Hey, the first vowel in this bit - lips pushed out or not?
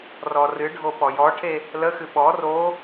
yes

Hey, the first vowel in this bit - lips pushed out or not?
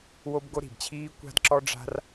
yes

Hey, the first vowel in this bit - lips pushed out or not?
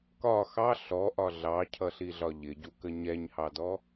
yes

